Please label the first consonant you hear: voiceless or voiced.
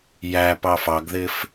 voiced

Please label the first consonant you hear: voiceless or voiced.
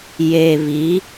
voiced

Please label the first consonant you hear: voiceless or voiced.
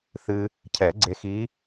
voiceless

